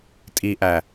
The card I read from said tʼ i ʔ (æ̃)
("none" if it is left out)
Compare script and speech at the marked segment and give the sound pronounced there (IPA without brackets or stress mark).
æ